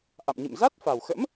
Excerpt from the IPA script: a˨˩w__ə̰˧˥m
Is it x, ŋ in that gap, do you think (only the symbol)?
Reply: x